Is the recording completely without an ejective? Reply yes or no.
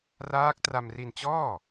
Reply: yes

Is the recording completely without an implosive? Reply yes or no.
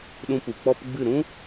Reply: no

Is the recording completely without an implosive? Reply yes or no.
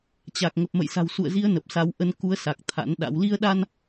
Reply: no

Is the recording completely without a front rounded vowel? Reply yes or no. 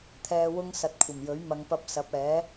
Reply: yes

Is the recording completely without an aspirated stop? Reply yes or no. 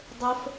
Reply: yes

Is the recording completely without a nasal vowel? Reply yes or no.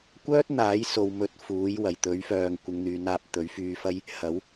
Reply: yes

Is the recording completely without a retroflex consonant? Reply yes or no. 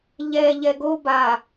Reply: yes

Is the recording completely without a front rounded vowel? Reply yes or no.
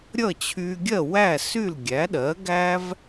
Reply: no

